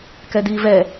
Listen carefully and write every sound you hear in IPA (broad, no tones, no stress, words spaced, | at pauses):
kɛdiːvɛ